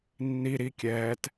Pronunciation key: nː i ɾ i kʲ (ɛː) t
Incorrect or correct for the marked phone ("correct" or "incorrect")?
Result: correct